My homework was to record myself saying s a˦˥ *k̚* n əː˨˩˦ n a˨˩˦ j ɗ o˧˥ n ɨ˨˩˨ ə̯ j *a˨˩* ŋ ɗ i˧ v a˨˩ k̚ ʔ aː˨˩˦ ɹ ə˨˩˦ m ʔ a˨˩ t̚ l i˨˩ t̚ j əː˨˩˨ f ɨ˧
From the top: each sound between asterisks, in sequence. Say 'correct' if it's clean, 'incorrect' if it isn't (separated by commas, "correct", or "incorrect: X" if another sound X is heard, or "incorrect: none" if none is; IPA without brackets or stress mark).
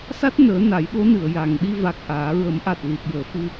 incorrect: t̚, correct